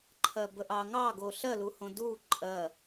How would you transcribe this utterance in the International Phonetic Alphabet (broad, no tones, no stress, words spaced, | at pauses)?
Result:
ǃʰɜbəʔɑŋɑ ɡoɬɜluhõ du ǃʼɜ